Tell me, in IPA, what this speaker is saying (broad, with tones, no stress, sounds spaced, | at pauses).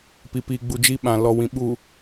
p i˨ p iː˨ ɡ͡b u˨ d͡ʒ i˦ ɓ ã˨ l ɔ˨ w ĩ˨ ɓ uː˨